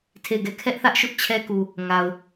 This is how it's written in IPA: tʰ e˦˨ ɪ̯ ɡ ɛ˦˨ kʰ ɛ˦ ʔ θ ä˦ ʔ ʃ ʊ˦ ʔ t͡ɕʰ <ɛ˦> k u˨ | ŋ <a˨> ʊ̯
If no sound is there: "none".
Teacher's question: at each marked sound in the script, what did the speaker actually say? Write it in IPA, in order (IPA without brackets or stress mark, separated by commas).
ɛ˦, a˨